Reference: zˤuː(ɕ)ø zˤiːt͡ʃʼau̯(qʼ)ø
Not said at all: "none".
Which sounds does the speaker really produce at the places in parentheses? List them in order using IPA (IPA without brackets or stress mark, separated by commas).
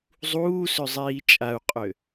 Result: s, qʼ